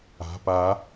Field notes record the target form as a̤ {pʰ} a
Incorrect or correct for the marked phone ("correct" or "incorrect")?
incorrect